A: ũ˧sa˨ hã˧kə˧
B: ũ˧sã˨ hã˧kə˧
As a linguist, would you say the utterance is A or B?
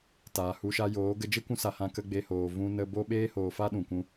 A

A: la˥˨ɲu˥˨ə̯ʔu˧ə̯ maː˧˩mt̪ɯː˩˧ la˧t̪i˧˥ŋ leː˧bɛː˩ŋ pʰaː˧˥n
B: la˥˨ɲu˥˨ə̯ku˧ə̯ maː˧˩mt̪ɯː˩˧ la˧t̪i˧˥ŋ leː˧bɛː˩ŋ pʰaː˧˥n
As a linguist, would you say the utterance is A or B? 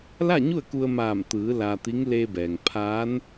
B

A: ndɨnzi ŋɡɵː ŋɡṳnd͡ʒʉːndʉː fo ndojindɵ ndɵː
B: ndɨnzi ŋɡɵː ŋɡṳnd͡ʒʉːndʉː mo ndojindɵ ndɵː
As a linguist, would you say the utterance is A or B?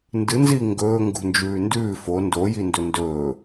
A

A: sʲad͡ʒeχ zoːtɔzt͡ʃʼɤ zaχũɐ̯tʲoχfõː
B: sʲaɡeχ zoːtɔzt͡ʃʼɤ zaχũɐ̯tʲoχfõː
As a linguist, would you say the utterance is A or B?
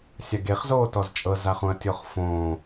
B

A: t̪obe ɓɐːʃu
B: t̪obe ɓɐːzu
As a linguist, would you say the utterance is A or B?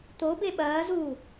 B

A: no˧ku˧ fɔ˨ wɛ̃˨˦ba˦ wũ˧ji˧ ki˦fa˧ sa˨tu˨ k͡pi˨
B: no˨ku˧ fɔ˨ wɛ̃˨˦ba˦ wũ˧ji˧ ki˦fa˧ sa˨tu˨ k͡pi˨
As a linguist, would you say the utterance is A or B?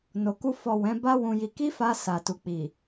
B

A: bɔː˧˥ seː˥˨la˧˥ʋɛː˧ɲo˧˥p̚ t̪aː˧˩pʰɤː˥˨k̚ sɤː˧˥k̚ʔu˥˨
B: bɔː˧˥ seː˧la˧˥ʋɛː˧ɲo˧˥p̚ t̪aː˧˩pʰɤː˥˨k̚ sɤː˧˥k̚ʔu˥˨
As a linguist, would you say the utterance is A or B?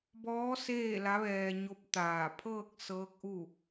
A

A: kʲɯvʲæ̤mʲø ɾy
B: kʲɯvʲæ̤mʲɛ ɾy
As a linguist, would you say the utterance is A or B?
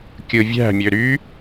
A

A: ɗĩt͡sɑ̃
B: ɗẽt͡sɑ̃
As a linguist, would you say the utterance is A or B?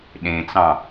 B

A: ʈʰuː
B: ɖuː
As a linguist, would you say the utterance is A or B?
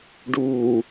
B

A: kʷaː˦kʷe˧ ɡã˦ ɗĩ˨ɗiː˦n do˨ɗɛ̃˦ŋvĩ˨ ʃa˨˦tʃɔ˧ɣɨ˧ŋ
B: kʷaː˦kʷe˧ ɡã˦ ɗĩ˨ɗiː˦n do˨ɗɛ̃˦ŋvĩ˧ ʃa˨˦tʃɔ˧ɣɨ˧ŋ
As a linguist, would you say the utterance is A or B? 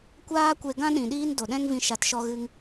B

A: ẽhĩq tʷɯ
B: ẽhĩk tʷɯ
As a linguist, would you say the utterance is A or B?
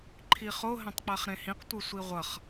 A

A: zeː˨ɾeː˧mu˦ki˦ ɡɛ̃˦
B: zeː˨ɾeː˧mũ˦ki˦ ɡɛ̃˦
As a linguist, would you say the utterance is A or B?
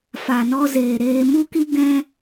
A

